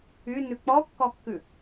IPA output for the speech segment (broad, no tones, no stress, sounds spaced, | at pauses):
y n ʉ k͡p ɔ kː ɔ kː ʉ